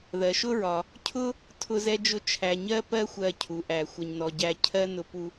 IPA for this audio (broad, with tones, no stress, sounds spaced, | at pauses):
ð ɜ˩ ʃ ʊ˥ ɹ ɒ˩ | cʰ ʊ˥ | tʰ ʊ˧ z ɛ˥ d͡ʒ ʊ˥ t͡ʃʰ æ˧ ɲ ɜ˥ p ɜ˥ xʷ ɜ˧ cʰ u˩ ʔ æ˩ xʷ ʌ˩ ɲ n ɔ˩ ɟ æ˧ cʰ ɜ˥ n ʊ˧ p u˧